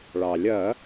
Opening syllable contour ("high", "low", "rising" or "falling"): low